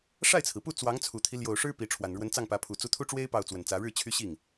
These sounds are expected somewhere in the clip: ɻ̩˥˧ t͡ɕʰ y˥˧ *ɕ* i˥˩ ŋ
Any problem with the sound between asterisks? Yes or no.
no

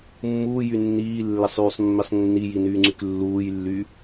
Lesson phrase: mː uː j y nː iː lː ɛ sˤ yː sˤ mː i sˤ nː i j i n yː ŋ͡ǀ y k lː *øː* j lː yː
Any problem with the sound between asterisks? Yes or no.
yes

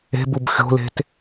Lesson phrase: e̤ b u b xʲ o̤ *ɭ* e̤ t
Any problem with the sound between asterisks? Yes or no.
yes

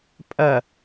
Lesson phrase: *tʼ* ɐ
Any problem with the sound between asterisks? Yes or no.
yes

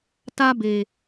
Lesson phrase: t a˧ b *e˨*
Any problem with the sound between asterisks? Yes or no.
no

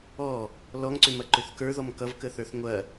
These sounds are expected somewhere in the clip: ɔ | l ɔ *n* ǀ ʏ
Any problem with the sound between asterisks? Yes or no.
yes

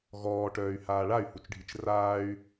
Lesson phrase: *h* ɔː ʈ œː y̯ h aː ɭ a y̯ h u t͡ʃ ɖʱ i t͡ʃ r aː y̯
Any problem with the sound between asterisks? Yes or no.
yes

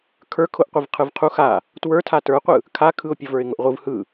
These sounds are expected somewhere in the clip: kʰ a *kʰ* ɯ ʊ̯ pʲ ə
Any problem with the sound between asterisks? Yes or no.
no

